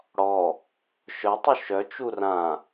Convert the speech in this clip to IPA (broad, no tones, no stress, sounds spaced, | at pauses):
ɽ ɔ | ʃ œ tˤ u ʃ œ t͡ʃ u r ã